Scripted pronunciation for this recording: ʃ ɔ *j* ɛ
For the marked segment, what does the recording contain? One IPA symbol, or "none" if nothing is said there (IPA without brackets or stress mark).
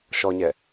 ɲ